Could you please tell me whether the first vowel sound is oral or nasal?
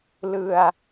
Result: oral